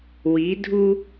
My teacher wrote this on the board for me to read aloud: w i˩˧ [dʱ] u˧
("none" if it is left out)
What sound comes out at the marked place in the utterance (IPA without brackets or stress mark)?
dʱ